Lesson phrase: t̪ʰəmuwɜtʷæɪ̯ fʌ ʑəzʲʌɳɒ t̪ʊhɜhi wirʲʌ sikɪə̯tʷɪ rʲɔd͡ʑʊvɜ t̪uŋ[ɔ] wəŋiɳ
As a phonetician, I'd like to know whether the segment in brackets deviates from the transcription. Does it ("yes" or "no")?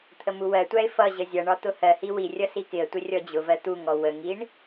no